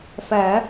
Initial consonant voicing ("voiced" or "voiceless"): voiceless